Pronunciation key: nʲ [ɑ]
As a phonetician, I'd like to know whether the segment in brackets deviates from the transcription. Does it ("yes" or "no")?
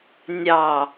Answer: no